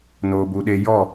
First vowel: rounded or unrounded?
rounded